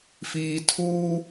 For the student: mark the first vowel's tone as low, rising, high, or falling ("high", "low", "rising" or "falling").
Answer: low